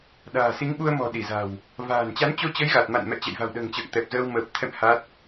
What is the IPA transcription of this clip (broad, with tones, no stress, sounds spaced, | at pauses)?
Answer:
ɗ a̤ː˨˩ s i˨˦ ŋ ɓ u˧ ə̯ m ɔ̤˨˩ ɗ i˧˩ z a̤˨˩ w | v a̤ː˨˩ n t͡ɕ a˨˦ n t͡ɕ o˧ t͡ɕ ə˨˦ j ɣ a˨˩ t̚ m a̰˧˨ n m ɛ̰˧˨ t͡ɕ ɛ̰˧˨ j v a̤˨˩ w ɗ ə̤ː˨˩ ŋ t͡ɕ ə̰ː˧˨ ŋ t̪ ɛ˨˩ p̚ z əː˧ w m əː˨˩ p̚ t̪ʰ ɛ̰˧˨ m h a˦˥ t̚